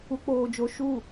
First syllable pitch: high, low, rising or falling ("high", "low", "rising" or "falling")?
low